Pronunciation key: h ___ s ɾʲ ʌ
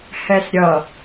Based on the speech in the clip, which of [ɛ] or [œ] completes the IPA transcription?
ɛ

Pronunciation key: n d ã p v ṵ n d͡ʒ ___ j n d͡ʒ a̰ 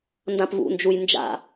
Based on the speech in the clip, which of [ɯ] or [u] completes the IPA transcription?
u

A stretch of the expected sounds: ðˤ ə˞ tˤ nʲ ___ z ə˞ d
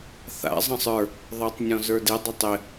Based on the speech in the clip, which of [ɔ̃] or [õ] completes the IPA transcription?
ɔ̃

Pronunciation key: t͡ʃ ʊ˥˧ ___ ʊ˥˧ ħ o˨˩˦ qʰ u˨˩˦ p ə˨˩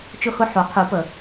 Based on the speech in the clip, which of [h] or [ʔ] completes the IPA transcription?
h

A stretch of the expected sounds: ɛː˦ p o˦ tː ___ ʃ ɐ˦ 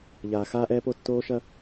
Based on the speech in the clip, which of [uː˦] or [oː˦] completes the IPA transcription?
oː˦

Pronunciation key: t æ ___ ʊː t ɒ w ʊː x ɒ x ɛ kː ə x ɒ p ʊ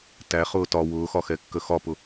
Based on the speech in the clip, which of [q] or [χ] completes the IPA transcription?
χ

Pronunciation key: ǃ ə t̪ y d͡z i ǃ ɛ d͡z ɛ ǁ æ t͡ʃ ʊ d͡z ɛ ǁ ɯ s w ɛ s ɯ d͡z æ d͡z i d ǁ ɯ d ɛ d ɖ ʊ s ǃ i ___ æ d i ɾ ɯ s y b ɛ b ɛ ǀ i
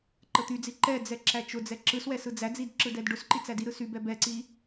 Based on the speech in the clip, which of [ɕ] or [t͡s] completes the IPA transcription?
t͡s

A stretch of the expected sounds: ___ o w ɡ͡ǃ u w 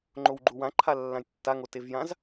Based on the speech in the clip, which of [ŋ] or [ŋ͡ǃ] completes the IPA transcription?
ŋ͡ǃ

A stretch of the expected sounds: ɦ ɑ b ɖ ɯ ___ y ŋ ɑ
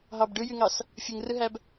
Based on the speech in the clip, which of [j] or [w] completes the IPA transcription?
j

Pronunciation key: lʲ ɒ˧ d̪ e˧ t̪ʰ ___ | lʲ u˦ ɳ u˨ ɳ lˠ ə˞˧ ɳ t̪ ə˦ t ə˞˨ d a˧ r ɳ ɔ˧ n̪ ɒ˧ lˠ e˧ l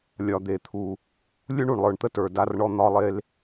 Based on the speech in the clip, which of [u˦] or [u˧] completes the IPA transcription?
u˧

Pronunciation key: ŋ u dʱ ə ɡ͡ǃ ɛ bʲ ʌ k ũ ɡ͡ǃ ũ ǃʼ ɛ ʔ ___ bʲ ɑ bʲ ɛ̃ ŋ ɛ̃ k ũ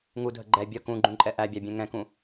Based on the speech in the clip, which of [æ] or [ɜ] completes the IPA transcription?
æ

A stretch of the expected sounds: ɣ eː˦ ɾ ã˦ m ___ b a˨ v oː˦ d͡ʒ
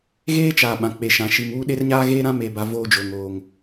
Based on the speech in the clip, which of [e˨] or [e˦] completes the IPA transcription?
e˨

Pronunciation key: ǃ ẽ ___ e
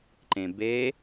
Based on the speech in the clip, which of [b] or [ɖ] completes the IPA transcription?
b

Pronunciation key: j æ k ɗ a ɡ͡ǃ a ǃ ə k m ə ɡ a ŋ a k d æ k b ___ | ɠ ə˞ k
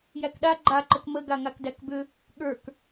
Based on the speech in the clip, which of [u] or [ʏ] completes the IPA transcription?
ʏ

